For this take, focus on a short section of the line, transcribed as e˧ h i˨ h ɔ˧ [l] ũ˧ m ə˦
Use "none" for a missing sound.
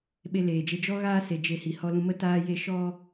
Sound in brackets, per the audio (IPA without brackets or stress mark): l